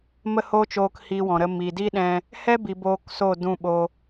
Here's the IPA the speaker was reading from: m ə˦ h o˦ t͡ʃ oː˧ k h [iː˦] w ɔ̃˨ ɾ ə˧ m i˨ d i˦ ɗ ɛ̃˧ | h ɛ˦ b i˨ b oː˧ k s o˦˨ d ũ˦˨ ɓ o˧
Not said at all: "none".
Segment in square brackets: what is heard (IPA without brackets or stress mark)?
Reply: iː˧